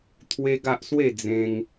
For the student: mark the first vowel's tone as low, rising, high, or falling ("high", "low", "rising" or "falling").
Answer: high